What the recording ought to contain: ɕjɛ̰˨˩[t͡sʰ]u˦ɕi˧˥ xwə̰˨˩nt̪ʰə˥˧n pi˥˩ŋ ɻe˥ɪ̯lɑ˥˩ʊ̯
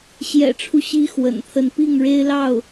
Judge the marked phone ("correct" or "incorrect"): incorrect